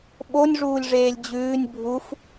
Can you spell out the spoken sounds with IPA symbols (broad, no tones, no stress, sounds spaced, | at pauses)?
ɓ o nʲ ʐ uː lʲ ʐ eː lʲ d͡ʑ ʉː nʲ bʱ u f